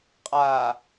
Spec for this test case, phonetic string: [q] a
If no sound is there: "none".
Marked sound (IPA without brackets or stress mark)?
qʼ